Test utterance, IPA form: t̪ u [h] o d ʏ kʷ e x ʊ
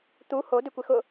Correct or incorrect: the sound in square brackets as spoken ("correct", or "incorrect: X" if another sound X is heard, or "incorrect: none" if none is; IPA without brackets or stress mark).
correct